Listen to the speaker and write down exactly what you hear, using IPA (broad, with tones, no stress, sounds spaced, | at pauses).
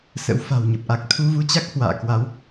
s ə̰˧˥ w f a̤˨˩ w ɲ ə˨˩ p̚ ʔ a˨˩ k̚ t̪ʰ u˧ v u˧ t͡ɕ a˦˥ k̚ h w a̰ː˧˨ k w a˨˦ w